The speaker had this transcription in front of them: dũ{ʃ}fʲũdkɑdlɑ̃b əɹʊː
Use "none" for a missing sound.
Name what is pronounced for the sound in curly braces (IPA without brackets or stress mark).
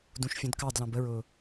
ʃ